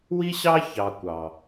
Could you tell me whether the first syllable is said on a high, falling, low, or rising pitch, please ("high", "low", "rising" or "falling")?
high